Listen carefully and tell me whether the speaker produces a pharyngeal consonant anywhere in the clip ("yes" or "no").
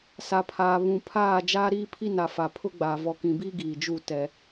no